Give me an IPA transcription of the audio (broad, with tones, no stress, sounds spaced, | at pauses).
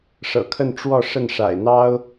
ʂ ɤ̰˨˩ kʰ ə˥˧ n ʈ͡ʂ w ɔ˥˧ ʂ ə˥˩ n ʂ a̰˨˩ ɪ̯ n̪ ɑ˥ ʊ̯